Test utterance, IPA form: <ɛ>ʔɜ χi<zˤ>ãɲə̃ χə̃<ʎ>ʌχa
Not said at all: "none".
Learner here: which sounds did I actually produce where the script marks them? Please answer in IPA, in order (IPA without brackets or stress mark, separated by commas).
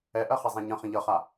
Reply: ɛ, zˤ, ʎ